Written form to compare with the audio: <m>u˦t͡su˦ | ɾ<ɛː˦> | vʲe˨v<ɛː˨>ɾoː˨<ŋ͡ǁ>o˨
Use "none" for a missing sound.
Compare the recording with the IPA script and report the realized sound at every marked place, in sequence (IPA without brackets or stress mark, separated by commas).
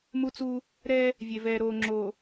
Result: m, ɛ˦, ɛː˨, ŋ͡ǁ